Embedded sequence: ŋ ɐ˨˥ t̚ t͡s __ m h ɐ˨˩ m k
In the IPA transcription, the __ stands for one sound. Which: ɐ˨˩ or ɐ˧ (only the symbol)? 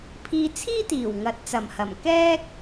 ɐ˨˩